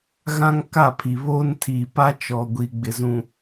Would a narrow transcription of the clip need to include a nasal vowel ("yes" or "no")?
yes